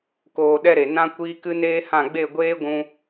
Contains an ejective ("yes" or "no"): no